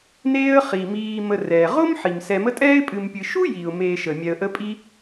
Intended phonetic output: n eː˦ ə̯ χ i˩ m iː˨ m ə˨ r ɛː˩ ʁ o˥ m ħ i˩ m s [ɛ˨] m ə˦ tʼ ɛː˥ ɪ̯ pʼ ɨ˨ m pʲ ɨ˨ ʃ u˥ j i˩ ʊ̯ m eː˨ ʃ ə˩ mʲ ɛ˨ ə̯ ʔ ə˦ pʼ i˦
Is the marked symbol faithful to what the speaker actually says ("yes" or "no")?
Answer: yes